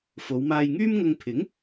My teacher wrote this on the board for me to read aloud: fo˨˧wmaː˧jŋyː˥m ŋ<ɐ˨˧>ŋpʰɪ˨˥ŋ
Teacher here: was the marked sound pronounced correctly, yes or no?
no